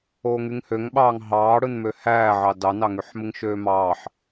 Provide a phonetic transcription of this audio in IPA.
oːŋyŋhøŋɓɑːŋ ɦɑːɽɯnmø hæːʕɑ dɑnɑŋyħ mɯŋʃøːmɑːħ

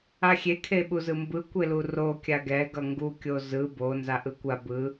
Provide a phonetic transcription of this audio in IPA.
axʲe kʰeɓuzɯmbɯ kʷeluro kʲaɡɛ ɡʌŋɡu kʲozɯ bo nzaʔɯkʷa bɯ

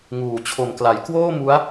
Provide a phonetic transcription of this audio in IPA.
ŋuː˨˩t͡ɕʰo˨˩mkla˩˦j kwoː˥˩mu˦˥a̯

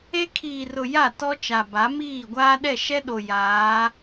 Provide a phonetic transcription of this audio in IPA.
e˦ kʰiː˨rʊ˨ ja˦˨tɔ˦t͡ʃa˨ ba˨˦miː˦˨ ɡʷaː˦ ɗɛ˦˨ʃɛ˦ ɗo˨ jaː˨˦

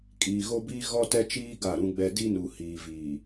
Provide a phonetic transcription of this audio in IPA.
kʼiː˨ɣo˦biː˦ ɣɔ˦tɛ˦t͡ʃiː˦ ɡa˦˨ɾũ˦ɡ͡bɛ˦ di˦nu˨ hiː˨viː˨

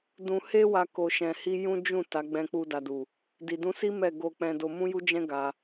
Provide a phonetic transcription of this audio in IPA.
dũ˧he˦wa˧ ko˧ʃɛ̃˧hi˦ jũ˦d͡ʒũ˦˨ ta˨˦ɡ͡bɛ̃˧k͡pu˧ da˨du˨ | di˨dũ˧ si˦ mɛ˦˨ ɡo˧k͡pɛ̃˧do˧ mũ˦ju˦d͡ʒɛ̃˦ ɡa˧

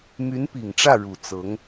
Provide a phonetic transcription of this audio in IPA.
my˧˥npi˨˩ŋʈ͡ʂä˥˩ ɻu˨˩t͡sɤ˧˥ŋ

